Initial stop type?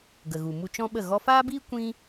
plain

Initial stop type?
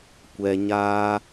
plain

